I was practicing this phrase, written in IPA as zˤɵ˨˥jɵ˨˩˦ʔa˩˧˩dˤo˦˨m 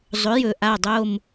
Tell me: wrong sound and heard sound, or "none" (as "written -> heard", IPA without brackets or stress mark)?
none